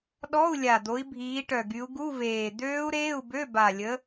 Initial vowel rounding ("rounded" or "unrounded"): rounded